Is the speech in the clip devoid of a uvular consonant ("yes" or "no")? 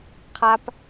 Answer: no